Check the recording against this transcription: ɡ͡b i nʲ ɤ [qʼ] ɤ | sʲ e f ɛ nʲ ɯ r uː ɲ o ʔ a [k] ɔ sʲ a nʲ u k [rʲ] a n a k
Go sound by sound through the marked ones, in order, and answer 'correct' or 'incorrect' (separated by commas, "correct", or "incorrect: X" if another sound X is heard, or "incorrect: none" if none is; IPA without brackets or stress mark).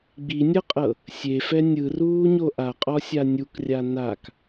correct, incorrect: qʼ, correct